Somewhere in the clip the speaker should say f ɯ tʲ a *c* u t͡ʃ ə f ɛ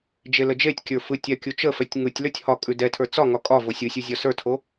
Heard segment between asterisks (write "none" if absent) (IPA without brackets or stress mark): kʲ